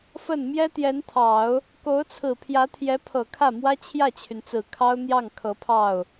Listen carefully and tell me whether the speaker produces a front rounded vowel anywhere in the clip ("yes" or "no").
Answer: yes